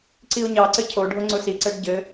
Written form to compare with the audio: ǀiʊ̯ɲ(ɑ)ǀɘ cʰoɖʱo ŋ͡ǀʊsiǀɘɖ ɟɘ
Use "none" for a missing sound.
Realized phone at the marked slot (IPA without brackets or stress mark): ɑ